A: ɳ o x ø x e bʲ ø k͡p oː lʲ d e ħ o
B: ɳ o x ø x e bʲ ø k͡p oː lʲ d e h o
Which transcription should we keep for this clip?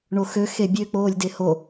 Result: B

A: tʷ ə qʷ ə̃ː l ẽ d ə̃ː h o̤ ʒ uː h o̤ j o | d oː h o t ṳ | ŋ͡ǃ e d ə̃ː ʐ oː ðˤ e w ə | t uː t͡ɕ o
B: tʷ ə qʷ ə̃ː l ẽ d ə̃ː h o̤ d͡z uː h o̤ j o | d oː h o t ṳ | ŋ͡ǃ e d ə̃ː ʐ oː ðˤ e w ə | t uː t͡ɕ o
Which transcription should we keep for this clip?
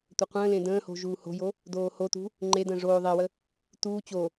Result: A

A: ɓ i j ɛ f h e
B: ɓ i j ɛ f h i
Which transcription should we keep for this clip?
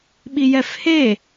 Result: A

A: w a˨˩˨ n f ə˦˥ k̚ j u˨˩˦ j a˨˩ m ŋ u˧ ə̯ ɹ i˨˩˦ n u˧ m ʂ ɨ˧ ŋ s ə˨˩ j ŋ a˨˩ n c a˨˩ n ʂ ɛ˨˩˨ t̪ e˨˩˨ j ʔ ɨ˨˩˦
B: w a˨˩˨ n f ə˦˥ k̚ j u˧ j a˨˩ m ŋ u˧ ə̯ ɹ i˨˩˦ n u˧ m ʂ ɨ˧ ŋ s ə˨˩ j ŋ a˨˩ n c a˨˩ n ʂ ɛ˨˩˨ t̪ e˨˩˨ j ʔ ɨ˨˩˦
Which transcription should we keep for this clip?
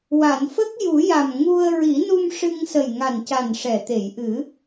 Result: A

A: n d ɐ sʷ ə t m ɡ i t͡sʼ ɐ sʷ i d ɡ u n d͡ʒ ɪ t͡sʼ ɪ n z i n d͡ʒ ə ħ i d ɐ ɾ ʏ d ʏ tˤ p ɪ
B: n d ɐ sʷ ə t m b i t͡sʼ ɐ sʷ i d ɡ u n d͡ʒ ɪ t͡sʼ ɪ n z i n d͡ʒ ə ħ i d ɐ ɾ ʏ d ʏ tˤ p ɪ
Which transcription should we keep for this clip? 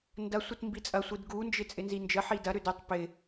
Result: B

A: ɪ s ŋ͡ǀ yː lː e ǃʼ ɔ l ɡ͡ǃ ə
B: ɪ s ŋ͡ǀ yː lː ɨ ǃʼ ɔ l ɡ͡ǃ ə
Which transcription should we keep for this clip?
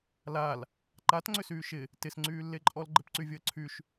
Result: A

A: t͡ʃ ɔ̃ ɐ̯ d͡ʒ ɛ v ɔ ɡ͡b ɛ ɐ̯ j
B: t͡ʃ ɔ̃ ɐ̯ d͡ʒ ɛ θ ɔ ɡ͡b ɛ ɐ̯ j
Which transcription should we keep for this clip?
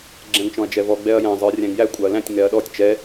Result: A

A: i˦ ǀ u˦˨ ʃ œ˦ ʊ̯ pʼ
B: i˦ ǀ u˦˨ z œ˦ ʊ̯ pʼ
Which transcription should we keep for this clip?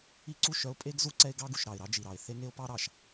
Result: A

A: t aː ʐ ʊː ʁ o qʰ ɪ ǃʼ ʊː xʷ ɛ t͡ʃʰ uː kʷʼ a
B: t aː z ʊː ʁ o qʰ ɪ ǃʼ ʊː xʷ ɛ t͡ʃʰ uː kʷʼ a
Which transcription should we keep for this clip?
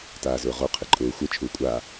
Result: B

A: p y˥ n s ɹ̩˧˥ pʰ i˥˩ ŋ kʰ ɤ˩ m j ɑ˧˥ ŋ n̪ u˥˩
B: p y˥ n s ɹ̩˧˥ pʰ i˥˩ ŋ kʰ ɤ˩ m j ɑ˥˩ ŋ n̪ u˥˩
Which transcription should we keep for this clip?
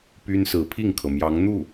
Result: A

